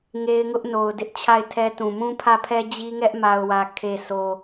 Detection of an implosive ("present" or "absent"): absent